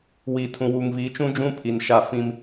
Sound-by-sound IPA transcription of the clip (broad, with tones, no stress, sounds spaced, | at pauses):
w i˨ tʰ ũ˨ w uː˨ ŋ v i˨˦ t͡ʃ ũ˦ d͡ʒ ũ˦ pʰ i˨ n ʃ a˦˨ f ĩ˦ m